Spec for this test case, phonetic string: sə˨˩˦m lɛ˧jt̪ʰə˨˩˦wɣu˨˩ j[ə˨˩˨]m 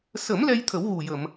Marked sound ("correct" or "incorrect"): correct